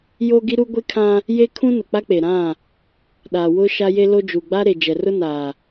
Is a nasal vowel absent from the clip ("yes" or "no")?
no